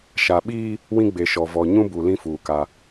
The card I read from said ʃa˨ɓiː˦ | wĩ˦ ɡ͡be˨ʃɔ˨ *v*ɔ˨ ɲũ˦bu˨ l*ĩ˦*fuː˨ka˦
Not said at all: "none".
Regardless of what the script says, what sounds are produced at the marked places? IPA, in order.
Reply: v, ĩ˦

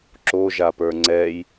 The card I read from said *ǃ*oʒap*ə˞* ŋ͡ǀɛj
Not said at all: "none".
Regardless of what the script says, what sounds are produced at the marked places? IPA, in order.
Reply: ǁ, ə˞

